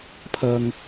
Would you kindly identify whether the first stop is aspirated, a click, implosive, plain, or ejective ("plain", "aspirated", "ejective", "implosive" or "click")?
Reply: aspirated